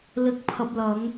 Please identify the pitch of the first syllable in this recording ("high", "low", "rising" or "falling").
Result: low